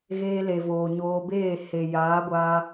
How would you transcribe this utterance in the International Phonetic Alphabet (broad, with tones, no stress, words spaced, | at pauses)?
ɣeː˧le˨voː˨ ɲoː˧beː˦˨ he˨ jaː˨˦ɡʷaː˧